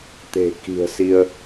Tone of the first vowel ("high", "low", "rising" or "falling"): low